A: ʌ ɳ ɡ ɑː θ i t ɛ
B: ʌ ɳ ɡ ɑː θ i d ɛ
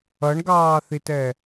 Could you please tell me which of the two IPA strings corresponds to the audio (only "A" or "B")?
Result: A